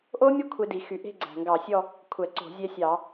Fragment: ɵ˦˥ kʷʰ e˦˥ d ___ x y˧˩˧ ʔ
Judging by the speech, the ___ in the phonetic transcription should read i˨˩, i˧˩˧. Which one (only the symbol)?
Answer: i˨˩